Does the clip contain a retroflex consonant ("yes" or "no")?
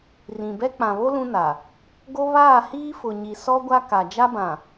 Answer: no